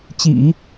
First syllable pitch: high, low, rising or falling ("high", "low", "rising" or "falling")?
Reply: low